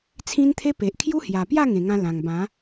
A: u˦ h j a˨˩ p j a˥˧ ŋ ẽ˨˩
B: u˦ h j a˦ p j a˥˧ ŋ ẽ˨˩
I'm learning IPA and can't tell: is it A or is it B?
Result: A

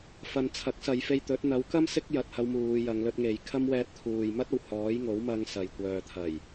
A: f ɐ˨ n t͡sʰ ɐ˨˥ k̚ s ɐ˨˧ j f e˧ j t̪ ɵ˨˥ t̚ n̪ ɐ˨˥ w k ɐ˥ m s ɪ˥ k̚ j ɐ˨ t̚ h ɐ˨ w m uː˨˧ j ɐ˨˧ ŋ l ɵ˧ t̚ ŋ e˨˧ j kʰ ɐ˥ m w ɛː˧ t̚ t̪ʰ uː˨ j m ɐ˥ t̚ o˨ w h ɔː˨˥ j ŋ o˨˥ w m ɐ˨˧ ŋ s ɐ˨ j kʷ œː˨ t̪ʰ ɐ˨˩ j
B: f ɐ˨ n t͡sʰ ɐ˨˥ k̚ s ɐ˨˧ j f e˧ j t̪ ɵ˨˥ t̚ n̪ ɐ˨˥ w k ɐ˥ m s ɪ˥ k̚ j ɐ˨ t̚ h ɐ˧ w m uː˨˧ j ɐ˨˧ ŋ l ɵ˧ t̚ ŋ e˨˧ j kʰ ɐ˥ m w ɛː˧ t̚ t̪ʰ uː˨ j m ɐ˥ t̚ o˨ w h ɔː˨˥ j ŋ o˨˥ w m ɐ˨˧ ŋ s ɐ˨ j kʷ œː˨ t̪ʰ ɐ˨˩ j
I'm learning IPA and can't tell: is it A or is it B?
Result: B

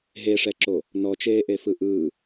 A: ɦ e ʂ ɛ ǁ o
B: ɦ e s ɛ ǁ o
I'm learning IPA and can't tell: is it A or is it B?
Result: A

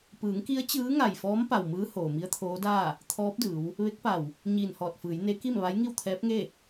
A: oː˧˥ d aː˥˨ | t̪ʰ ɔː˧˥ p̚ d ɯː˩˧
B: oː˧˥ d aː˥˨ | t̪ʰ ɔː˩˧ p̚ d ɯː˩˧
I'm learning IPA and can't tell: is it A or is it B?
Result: A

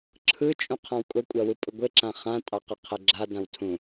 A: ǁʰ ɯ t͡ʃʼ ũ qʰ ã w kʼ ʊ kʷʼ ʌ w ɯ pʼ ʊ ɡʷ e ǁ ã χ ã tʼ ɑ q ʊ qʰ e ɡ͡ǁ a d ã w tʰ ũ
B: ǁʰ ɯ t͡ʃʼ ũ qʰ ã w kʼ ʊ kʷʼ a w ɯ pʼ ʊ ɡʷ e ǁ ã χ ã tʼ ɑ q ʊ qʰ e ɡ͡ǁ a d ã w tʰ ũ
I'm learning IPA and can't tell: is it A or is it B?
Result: B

